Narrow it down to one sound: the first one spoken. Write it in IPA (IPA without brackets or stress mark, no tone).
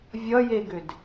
vʲ